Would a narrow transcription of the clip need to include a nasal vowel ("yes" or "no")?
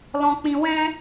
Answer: yes